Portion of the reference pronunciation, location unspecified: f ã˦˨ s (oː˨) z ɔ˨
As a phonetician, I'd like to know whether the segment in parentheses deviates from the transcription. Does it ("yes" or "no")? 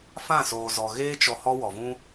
no